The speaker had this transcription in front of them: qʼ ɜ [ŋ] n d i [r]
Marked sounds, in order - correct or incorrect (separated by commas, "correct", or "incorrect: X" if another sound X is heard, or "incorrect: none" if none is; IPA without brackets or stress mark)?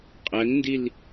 correct, incorrect: l